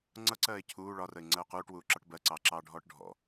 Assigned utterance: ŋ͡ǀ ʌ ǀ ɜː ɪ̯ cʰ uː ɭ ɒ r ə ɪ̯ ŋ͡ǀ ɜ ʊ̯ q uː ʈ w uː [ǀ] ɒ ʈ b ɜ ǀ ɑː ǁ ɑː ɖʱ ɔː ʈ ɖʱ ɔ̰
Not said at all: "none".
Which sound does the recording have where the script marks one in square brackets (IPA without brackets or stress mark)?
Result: ǁ